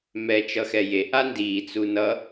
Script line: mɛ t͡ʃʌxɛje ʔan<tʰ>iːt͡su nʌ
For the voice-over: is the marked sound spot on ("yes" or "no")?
no